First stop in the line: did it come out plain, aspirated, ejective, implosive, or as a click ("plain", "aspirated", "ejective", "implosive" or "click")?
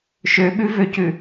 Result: implosive